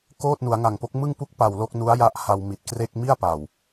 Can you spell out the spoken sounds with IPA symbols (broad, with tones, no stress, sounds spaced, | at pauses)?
k oː˥˩ t̚ n u˩˦ a̯ ŋ a˨˩ ŋ p o˦˥ k̚ m ɯ˥˩ ŋ p u˥˩ k̚ p a˨˩ w l o˥˩ k̚ n u˦˥ a̯ j a˦˥ ʔ h a˧ w m i˨˩ t̚ k r e˥˩ k̚ m i˥˩ a̯ p a˨˩ w